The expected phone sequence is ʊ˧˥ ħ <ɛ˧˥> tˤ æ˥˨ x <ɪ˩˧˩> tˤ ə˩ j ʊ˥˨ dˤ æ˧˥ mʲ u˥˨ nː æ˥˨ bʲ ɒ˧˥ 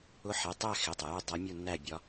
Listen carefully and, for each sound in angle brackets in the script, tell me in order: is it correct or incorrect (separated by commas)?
incorrect, correct